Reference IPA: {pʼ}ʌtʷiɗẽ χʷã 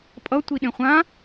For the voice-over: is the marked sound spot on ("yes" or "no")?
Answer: yes